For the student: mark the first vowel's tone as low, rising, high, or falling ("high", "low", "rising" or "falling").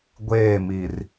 falling